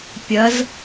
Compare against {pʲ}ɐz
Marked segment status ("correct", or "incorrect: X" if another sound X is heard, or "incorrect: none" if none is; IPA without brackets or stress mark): correct